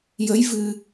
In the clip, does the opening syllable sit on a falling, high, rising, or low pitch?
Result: rising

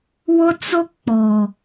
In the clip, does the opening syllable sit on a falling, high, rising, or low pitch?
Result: high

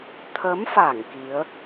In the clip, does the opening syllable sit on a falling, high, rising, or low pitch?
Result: rising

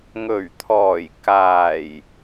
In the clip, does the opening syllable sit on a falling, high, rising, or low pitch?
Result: low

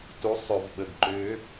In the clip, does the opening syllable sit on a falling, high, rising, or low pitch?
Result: rising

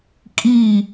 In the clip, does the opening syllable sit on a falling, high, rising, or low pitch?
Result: falling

